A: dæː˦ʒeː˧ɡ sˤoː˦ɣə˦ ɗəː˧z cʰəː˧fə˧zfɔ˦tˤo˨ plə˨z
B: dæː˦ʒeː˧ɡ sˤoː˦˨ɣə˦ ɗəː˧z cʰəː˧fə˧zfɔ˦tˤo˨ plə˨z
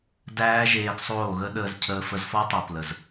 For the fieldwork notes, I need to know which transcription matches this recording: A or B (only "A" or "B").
B